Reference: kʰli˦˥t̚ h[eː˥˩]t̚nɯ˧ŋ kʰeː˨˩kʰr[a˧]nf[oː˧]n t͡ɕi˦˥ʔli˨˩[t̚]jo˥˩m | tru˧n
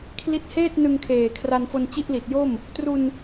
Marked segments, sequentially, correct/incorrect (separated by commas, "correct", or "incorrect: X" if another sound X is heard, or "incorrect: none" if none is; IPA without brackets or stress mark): correct, correct, incorrect: o˧, correct